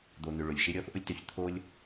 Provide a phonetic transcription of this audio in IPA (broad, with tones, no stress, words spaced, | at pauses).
d̪o˨n̪ʏ˨ ɭʊ˩lʲʃɪ˦ ɾʲɔ˦θʔʊ˦lʲtø˨ç t̪ʰo˥lʲ